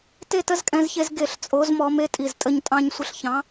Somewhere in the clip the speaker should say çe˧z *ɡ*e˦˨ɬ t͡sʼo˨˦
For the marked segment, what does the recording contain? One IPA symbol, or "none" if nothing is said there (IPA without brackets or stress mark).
ɡ